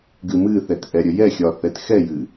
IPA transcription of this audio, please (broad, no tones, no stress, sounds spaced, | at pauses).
ɡ ɨ m ɨ θ ɛ t ʔ ɛ ɾʲ ə j ɛ xʲ ɒ θ ɛ t x ɛ j ɨ